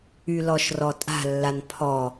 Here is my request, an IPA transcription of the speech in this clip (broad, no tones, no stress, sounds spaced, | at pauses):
y l ɔ ʃ r ɔ tʼ a̤ lː a n pʰ ɔ